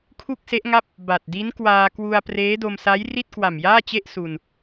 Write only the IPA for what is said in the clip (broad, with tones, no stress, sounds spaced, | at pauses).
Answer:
kʰ u˥˩ k̚ s e˦˥ ʔ ŋ a˥˩ p̚ | b a˨˩ t̚ d i˦˥ n k w aː˧ k w u˧ a̯ p r eː˦˥ d o˧ m s a˦˥ j r i˥˩ t̚ k w a˨˩ m j aː˥˩ t͡ɕ e˥˩ ʔ s u˧ n